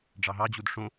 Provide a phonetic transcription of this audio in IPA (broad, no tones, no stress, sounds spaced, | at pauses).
ɖ͡ʐ ɑ ɦ ɑ d͡ʑ u d ʂ õ